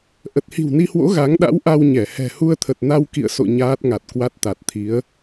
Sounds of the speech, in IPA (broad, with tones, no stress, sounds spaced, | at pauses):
ʔ ə˨˩ t̚ h i̤˨˩ w n i˧ h w o̰˧˥ ɣ a˨˦ ŋ ɗ a̰˧˥ w ʔ a˧ w ɲ ɛ˧˩ h ɛ̤˨˩ h u˧ ə̯ t̪ʰ ə˨˩ t̚ n a˧ w k ḭ˧˨ ə̯ s o̰˧˨ ɲ aː˦˥ t̚ ŋ a˨˩ t̚ k w a˦˥ t̚ t̪ a˨˩ t̚ t̪ʰ i˨˦ ə̯